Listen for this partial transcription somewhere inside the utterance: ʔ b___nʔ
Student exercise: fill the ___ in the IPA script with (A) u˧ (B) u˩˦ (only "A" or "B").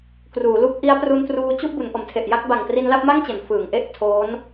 B